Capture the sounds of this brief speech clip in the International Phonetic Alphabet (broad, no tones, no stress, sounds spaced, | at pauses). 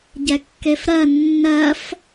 ɟ ɛ kː e f ɾ ɜ nː ɜ f